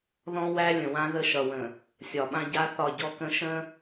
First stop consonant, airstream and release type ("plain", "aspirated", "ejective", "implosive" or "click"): implosive